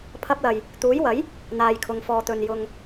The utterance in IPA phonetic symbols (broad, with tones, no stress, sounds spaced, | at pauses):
pʰ ɐ˧ p̚ l ɐ˨ j | t̪ uː˨˥ j w ɐ˨˥ j | n̪ aː˨ j kʰ ʊ˨ ŋ f ɔː˨ t̪ ɵ˨ n j ʊ˨ ŋ